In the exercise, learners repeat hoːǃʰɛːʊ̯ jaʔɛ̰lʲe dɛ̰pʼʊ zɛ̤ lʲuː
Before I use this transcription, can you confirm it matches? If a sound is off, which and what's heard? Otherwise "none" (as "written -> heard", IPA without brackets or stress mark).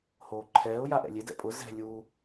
none